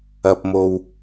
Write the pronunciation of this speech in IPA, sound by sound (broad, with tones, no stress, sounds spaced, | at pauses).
ɐ˧ p̚ m o˧ w